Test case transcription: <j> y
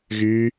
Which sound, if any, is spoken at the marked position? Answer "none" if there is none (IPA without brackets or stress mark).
ɣ